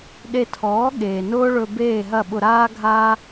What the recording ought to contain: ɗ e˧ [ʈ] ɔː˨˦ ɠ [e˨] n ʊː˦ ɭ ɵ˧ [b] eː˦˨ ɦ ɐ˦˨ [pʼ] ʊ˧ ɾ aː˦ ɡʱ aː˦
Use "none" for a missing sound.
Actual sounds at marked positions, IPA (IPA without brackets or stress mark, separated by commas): tʰ, eː˨, b, ɓ